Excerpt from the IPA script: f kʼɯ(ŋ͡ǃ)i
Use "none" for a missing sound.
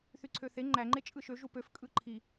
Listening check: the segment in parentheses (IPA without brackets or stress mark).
ǃʰ